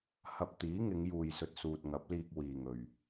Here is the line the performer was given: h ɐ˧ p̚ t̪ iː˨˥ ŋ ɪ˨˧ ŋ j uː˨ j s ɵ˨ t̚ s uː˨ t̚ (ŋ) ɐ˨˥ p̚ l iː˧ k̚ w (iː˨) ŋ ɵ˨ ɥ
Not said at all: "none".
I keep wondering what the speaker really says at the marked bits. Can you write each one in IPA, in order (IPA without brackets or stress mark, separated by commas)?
ŋ, iː˨